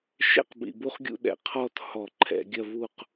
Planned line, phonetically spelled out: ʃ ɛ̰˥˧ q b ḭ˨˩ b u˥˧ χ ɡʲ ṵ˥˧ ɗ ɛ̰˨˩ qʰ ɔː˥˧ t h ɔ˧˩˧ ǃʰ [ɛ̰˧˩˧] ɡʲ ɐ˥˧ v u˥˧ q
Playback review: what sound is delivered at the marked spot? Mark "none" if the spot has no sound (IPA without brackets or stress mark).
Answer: ɛ̰˧˩˧